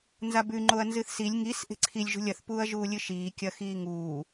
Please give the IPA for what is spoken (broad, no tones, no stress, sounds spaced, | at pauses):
n z a b ʉ ŋ͡ǃ o ɐ̯ n z ɨ θ s i lʲ ŋ i s ʔ e̤ ǀʰ i lʲ ʒ ṳ lʲ ɐ θ p uː ɐ̯ ʒ uː lʲ ɨ ʃ iː kʲ ɐ x iː ŋ uː